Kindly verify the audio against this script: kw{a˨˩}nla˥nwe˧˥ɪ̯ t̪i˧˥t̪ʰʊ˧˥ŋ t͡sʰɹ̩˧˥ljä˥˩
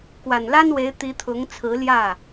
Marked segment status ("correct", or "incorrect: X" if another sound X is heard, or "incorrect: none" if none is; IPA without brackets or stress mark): correct